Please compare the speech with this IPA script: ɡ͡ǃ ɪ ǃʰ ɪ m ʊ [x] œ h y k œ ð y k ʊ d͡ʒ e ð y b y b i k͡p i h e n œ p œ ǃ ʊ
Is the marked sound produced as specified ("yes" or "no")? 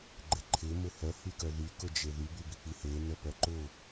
no